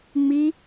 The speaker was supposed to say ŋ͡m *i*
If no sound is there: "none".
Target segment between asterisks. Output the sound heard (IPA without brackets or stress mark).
i